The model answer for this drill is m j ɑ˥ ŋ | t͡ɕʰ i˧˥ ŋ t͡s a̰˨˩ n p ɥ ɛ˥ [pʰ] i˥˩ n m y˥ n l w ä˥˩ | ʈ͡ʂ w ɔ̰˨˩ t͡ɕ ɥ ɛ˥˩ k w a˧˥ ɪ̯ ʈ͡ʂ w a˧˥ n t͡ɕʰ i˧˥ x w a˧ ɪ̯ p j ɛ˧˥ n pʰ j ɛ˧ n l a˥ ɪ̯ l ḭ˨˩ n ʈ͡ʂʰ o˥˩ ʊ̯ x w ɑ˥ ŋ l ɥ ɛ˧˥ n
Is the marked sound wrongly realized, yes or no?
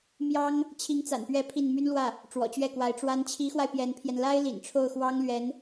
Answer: no